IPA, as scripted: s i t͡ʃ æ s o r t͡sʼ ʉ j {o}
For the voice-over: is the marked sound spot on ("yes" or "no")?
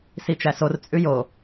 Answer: yes